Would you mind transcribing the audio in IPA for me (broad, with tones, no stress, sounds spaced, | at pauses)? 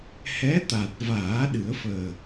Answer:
h ɛ˧˥ t̪ a˨˩ t̚ v aː˨˩˦ ɗ ɨ˨˩˦ ə̯ f əː˨˩